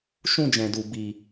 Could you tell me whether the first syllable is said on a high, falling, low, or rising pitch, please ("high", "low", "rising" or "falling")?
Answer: high